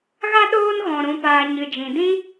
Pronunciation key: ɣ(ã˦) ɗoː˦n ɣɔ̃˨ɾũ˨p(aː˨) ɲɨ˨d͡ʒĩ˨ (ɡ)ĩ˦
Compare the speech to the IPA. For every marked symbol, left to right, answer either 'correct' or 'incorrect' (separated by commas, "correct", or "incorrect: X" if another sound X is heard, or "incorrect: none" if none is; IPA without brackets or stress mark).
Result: incorrect: a˦, correct, incorrect: d